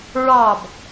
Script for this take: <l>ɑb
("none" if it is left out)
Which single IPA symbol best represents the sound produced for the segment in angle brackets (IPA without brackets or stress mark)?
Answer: ɹ